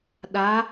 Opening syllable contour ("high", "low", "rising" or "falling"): rising